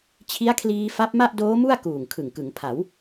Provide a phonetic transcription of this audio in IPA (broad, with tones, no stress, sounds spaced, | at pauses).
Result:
t͡ɕʰ i˦˥ a̯ kʰ l iː˧ f a˦˥ p̚ m a˥˩ ʔ d oː˦˥ m u˥˩ a̯ k uː˨˩ ŋ kʰ ɯ˨˩ ŋ k ɯ˩˦ ŋ pʰ a˩˦ w